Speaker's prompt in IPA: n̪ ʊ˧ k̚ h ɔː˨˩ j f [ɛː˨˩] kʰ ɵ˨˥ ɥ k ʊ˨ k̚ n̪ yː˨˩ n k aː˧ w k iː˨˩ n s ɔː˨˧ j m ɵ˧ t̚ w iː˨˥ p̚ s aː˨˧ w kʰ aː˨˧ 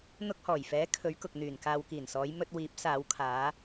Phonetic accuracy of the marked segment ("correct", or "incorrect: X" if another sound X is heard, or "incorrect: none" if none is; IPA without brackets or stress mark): incorrect: ɛː˨˥